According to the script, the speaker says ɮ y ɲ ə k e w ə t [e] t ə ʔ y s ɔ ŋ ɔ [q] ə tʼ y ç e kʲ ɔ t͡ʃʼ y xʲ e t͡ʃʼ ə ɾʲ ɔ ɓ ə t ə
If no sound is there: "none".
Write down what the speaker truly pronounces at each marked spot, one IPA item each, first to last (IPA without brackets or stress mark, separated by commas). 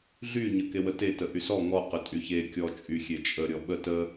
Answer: e, q